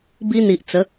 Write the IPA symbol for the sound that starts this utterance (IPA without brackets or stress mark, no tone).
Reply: b